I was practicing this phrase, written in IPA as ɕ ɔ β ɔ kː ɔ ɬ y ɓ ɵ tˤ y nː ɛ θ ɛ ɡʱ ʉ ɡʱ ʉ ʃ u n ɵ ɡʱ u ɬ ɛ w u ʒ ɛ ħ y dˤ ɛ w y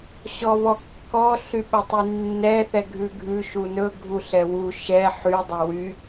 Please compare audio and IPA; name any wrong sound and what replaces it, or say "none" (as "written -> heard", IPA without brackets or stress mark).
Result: ʒ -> ʃ